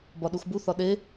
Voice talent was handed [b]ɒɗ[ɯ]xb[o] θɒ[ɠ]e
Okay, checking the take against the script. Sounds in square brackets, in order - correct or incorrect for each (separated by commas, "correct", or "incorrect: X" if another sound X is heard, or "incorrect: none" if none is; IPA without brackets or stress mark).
correct, incorrect: u, incorrect: u, incorrect: ɗ